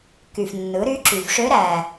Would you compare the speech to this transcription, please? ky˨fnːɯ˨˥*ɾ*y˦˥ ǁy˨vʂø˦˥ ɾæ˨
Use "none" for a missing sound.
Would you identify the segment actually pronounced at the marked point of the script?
ɾ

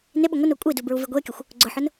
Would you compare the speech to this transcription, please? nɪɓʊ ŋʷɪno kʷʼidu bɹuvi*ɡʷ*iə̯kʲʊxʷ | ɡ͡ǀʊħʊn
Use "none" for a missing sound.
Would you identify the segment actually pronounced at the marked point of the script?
ɡʷ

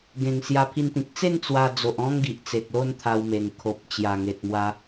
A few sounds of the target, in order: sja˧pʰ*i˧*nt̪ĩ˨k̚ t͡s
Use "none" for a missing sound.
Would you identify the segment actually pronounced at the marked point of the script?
i˧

